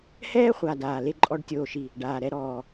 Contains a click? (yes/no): yes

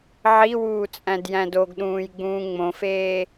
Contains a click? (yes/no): no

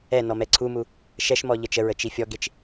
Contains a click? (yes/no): yes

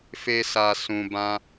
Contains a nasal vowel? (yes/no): yes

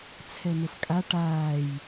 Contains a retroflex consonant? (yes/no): yes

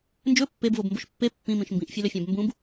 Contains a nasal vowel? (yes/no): yes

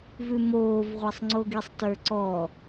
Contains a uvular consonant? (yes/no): yes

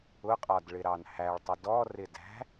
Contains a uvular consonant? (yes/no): yes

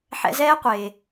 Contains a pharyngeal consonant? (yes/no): yes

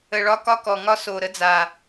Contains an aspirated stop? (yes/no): no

